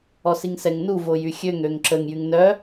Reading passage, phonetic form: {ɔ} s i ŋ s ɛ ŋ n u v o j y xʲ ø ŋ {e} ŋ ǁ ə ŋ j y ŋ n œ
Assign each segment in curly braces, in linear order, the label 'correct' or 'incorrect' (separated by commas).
correct, incorrect